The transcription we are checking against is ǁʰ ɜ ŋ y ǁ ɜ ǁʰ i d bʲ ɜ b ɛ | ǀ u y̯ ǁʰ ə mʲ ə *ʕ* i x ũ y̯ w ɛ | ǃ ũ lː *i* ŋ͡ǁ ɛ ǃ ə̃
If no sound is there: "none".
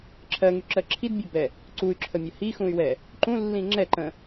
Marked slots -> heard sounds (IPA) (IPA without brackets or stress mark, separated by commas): h, ĩ